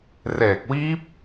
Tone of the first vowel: low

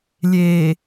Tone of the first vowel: low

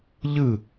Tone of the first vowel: falling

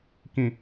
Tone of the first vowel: falling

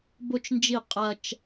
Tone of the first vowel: high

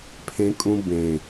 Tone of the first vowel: high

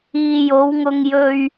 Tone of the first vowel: low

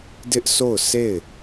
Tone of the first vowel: high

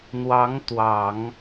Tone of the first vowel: rising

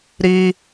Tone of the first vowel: high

